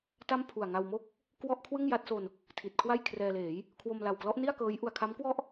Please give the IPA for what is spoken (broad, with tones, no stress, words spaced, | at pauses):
ta˥˩mpʰu˨˩a̯ŋa˧wmo˥˩k̚ | kwɔ˥˩ʔkʰwɯ˥˩ŋja˦˥t̚so˧n | tʰi˨˩t̚kʰwa˥˩j kʰrɛː˧leː˩˦j | kʰwo˧mla˨˩wklɔ˦˥ʔ ni˥˩a̯kɤː˦˥j ʔu˧a̯kʰa˦˥mkwɔ˥˩ʔ